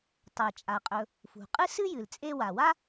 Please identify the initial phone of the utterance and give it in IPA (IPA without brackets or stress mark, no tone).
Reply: tˤ